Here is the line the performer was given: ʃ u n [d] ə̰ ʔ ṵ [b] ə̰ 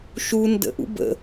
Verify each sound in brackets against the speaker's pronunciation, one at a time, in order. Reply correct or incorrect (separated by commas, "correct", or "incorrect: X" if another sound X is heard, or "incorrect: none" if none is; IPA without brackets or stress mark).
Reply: correct, correct